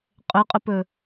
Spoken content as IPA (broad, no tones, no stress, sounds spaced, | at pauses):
qʼ ɵ qʼ ɵ p ɵ